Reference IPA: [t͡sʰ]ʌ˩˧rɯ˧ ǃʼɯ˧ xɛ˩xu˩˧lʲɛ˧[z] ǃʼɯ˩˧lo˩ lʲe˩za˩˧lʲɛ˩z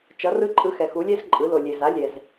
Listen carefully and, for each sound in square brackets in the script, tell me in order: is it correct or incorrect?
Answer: incorrect: t͡ʃ, correct

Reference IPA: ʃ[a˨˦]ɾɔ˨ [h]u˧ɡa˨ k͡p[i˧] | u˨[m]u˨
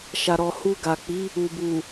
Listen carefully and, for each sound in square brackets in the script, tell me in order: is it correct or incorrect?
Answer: incorrect: a˨, correct, incorrect: i˨˦, incorrect: b

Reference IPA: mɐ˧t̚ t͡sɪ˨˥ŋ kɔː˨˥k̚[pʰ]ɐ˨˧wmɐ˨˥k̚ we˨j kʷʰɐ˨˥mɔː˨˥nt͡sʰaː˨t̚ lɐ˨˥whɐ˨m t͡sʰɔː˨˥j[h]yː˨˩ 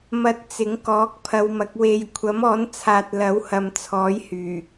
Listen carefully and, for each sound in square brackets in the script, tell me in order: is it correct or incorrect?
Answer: correct, correct

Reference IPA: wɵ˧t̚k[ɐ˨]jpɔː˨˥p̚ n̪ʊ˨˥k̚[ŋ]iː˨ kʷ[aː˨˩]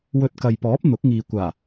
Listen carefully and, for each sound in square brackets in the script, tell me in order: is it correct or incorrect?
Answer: correct, correct, correct

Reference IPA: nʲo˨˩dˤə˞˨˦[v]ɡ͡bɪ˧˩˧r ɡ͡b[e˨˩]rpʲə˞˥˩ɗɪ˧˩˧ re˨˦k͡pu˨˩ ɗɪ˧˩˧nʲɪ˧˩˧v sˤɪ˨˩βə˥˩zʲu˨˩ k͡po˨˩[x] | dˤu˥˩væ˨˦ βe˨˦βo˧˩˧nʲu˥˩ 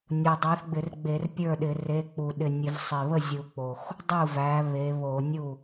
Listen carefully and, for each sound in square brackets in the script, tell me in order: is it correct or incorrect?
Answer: incorrect: θ, incorrect: e˧˩˧, correct

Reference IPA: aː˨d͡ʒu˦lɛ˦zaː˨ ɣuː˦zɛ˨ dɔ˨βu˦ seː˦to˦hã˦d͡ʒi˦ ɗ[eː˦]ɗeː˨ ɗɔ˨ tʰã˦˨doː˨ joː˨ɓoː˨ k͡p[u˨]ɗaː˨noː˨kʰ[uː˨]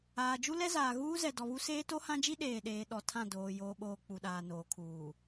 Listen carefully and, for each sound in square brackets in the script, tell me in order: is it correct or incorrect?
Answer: incorrect: eː˨, correct, correct

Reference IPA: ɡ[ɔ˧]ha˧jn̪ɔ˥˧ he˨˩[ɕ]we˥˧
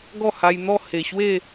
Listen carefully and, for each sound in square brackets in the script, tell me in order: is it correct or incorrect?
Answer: incorrect: ɔ˥˧, correct

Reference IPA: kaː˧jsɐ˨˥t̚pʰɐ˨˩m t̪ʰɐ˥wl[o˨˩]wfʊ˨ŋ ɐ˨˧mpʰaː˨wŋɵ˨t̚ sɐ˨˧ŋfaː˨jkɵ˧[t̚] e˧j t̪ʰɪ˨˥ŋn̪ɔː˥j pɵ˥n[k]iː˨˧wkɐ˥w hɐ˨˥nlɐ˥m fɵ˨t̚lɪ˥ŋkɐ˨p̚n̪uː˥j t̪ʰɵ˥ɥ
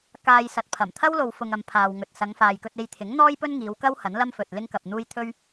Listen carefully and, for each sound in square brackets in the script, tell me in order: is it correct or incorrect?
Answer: incorrect: o˨, correct, incorrect: ŋ

